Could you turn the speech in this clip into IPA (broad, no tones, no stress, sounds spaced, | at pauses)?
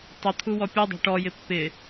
tˤ ə t̪ʰ u w ɔ pʲ u dˤ a̤ ʈ ɔ j ɪ pː ɪ